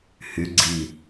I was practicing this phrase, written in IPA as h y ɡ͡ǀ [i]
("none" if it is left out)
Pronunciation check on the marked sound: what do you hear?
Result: i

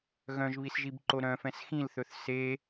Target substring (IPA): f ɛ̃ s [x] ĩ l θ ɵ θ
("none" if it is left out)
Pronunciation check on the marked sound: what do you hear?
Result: x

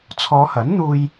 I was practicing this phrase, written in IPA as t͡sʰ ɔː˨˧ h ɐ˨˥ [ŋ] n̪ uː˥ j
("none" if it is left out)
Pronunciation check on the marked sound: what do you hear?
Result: n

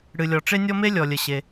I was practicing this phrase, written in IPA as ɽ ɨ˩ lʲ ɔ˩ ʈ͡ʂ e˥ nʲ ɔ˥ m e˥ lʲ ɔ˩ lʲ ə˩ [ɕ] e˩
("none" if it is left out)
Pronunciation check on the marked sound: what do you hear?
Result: ɕ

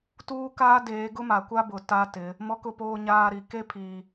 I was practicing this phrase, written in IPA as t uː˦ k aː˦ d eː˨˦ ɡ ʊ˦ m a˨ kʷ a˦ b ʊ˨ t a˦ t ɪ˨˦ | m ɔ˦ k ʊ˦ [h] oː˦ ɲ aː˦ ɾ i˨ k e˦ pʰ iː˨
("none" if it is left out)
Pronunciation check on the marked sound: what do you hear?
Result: p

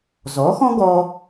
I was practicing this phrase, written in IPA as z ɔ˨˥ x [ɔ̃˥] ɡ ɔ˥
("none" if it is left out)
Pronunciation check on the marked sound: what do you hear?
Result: ɔ̃˥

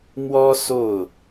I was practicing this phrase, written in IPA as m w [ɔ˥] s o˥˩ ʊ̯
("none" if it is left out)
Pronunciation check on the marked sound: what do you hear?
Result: ɔ˥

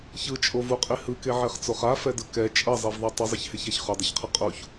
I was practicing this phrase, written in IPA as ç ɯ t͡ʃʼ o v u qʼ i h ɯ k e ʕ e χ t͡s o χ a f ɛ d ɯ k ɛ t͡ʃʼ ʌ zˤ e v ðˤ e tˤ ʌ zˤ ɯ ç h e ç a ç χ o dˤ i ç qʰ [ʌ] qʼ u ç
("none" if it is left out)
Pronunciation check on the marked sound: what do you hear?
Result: ʌ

